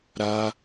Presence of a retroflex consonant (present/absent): absent